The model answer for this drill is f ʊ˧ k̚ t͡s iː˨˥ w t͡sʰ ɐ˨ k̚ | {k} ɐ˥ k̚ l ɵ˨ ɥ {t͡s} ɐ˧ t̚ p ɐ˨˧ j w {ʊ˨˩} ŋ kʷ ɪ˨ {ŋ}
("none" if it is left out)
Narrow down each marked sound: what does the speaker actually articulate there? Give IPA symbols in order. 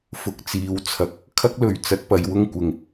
kʰ, t͡s, ʊ˥, ŋ

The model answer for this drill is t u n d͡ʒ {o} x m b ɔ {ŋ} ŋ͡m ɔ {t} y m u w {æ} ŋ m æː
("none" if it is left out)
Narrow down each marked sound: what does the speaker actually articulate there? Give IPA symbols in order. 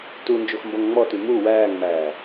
o, ŋ, t, æː

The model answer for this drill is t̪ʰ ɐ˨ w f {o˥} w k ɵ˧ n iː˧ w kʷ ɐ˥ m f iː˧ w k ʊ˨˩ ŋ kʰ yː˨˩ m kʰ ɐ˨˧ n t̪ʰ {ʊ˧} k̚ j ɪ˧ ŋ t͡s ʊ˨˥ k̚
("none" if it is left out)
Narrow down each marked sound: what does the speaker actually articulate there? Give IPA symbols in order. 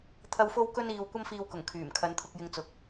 o˧, ʊ˧

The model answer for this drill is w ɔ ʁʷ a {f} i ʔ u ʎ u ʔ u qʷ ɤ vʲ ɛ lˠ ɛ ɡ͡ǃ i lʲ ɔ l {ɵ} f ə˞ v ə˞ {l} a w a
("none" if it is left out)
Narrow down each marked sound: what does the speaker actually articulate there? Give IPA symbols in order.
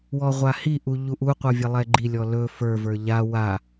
h, ɵ, ʎ

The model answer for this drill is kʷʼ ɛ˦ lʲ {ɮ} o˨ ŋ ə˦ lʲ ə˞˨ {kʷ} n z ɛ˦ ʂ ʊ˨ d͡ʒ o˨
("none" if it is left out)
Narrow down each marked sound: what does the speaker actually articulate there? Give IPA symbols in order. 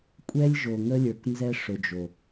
ʒ, k

